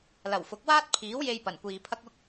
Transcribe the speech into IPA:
l ɐ˨˩ w f ʊ˨˥ k̚ w aː˥ t̚ pʰ iː˨˥ w j e˧ j p ɐ˨˩ n kʷ iː˨ pʰ ɐ˥ k̚ ʊ˥ k̚

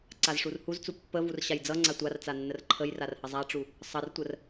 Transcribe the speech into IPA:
ǀ a z ʂ u r h u z t͡s u pː ə v u r ɕ a j d͡z ʌ ŋ͡ǀ a tʷ a r t͡s a nː ə r ǃʰ ə j r a r h ə zˤ a ʈ͡ʂ u | sˤ ʌ r tʷ ə r

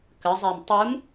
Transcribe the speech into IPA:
k ə zˤ æ m tˤ u m

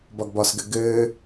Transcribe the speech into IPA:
b ɒ ɡ b ɒ s ɡ ɘ ɡ ɘː

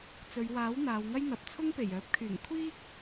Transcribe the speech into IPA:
t͡s ɵ˨˧ ɥ w aː˨˥ w n̪ aː˨˧ w ŋ ɐ˥ j n̪ ɐ˨ p̚ t͡sʰ ʊ˥ ŋ p e˨˩ j œː˨˥ p̚ kʰ yː˨˩ ŋ kʷʰ iː˥ k̚

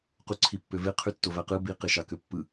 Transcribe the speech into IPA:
q u ǀʰ i pː ø v e qʰ y tː o v æ q ɯ b i q e ʃ ɑ k ø pː ɯ

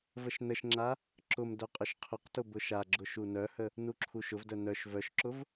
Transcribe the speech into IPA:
v ə ʃ n ə ʃ ŋ͡ǁ a | ǁ ʊ m d œ qʼ ʊ ʃ qʰ ʊ q t ʊ b ʊ ʃ a ɡ͡ǁ ʊ ʃ u n œ h ə | n u ǁʰ u ʃ ʊ v d œ n œ ʃ v œ ʃ ǁ ʊ v

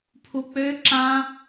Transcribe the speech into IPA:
pʰ u k͡p ø ǁ ã

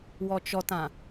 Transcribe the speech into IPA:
w ɔ t͡ʃ ɔ t ã

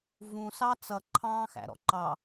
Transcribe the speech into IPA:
v ũ s ɑ t͡s ʌ ǃʰ ɑ̃ː x æ̰ ɾ ɔ̰ ǃ ɑ

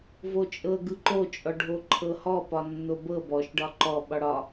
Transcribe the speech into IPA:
v o t͡ʃʼ ɤ ɡ ɯ ǃ o t͡ʃʼ ɔ ɖʱ o ǃʰ ɤ h ɔ p ɒ nː o b ɤ b ɔ ʃ ɖ ɒ ǃ ɔ ɓ ɒ ɽ ɒ

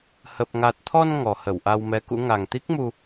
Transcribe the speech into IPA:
h ə˨˩ p̚ ŋ a˨˩ t̚ t̪ʰ ɔ˧ n ŋ ɔ˨˩ h ə˧˩ w ʔ a˧ w m ɛ˨˦ k ṵ˧˥ ŋ a˨˩ ŋ t̪ i˦˥ k̚ m u˧

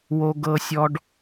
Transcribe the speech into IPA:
w o˦ ɡ ɤ˦ sʲ ɔ˦ ɖ

